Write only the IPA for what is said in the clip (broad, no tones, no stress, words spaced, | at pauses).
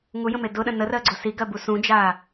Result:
ŋujə̃me dʊɗə̃ nərɜɡ͡ǀʊ siɡɜbu sũd͡ʒa